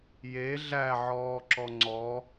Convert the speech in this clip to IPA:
j e ɮ æ ʕ ɔː ǁ ɔ ŋ͡ǀ ɔ

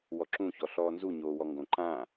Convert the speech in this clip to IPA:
w ɔ ǁ ũ ç ɔ ɬ ɔː n z u ɲ oː w ɔ ŋ ɡ õ ǃ ã

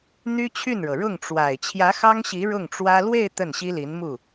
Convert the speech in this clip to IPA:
n̪ y˥ t͡ɕʰ y˥˩ n ɻ ɤ˩ ɻ ʊ˥˩ ŋ ʈ͡ʂ w a˨˩ ɪ̯ t͡ɕʰ j ä˧˥ x ɑ˥ ŋ ɕ i˧˥ ɻ ʊ˥˩ ŋ ʈ͡ʂ w ä˥ l w e˥˧ ɪ̯ t̪ ə˥˩ n ɕ i˥ l i˧˥ n m u˥˩

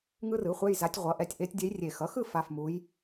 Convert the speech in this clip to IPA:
ŋ ɯ˥ r ɯ˩˥ χʷ ɛ˧˥˧ j z a˧˥ tʲ ʁʷ ʌ˩˥ ʔ ɛ˩˥ tʲ ʔ e˧˥ tʲ dʲ ɛ˧˥ j rʲ e˨˩ x ʌ˩˥ x ɯ˥˧ f a˧˥˧ f m u˧˥ j

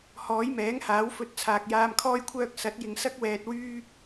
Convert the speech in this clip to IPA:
h ɔː˨˥ j m ɛː˨˥ ŋ h aː˨˥ w f ɵ˨˥ t̚ t͡sʰ aː˨ k̚ j aː˧ m kʰ ɔː˥ j kʷʰ œː˥ k̚ s ɐ˨˥ t̚ j ɪ˨ ŋ s ɐ˥ k̚ w ɛː˨ t̚ w yː˥

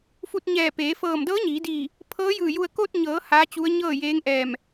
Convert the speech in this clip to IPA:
f u˧ t̚ ɲ ɛː˧˩ p eː˩˧ f ɤː˧˩ m d ɤː˧˥ ɲ iː˩˧ d iː˧˩ | pʰ ɤː˧˥ j ɯː˧˩ j u˧ ə̯ k o˧ t̚ ɲ ɤː˩˧ h aː˧˥ t͡ɕ u˧˥ ə̯ ɲ ɤː˥˨ j eː˧˥ ŋ ʔ ɛː˧˩ m

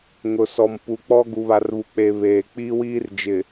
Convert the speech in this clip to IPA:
ŋ ʊ˨ s ɔ˨ m p u˨ k͡p ɔ˦ ɡ u˨ β a˨ r β u˨ k͡p e˨ β eː˨ k͡p iː˦ w iː˦ r d͡ʒ ɪ˨

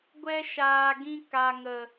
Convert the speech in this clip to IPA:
ɡʷ ɛ˦ ʃ aː˧ ɡ ĩ˧ k a˨ ŋ ə˨

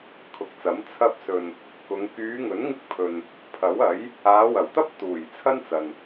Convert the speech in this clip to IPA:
kʰ ʊ˨ k̚ t͡s ɐ˨˥ m t͡sʰ ɐ˧ p̚ s ɵ˨ n | k ʊ˨˧ ŋ k yː˨˧ ŋ ɵ˨˥ n ŋ ɪ˧ k̚ pʰ ɵ˨ n | pʰ ɐ˨˥ w ɐ˨˥ j | aː˨˧ w ɐ˨˩ w t̪ ɐ˥ p̚ t̪ uː˨˩ j t͡sʰ ɐ˥ n t͡s ɐ˨ n

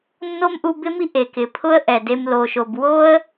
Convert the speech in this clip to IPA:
nː o˦ m ʔ u˧ b ɪ˦ m i˦ ʔ e˨ k ɪ˨ pʰ ʊ˦ ə̯ ʔ ɛ˨ d e˦ m l o˧ ʃ o˧ b w o˦ ə̯

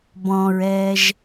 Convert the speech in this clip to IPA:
b ɔ̃ ɹ ɛː ʒ

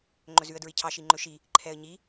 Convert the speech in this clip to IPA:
ŋ͡ǃ ɵ z ʉ ə̯ d ɹ i cʰ ɑ ʃ i ŋ͡ǃ ɵ ʃ i | ǃʰ ɛ ə̯ ɲ i

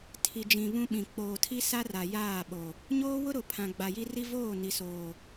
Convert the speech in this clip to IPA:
tʰ i˨ d͡ʒ ĩ˨ β ũ˦ ɓ ĩ˨ k͡p oː˨ tʰ i˦ s a˦ r a˨ j aː˦˨ ɓ o˨ | ɲ oː˦ w ʊ˦ ɾ ʊ˨ pʰ ã˨ ɡ͡b a˨ j i˦ r i˦ v oː˦˨ n i˨ s oː˨

